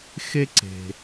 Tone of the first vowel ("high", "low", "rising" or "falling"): high